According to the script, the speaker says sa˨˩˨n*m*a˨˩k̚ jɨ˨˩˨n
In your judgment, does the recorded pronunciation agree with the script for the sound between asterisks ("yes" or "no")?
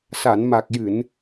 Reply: yes